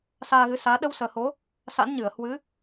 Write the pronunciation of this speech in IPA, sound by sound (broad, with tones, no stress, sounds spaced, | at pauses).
s aː˧ ɣ ɨ˨˦ s aː˨˦ ɗ ə˧ w s əː˨˩ h o˨˦ | s a̰˧˥ n ɲ ɨ˧˩ ə̯ h w ɨ˨˦